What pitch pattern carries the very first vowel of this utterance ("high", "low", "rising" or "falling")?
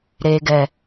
low